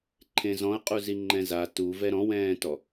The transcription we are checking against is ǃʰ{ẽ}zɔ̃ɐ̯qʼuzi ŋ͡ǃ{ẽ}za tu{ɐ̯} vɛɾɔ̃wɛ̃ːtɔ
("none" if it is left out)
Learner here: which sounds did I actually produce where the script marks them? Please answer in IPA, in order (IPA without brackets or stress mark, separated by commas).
ẽ, ɛ̃, none